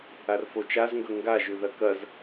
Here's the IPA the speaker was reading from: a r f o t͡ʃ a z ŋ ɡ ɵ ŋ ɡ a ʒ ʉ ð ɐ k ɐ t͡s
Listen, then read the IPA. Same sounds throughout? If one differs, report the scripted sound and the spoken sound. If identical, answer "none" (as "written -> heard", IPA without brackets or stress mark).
t͡s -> z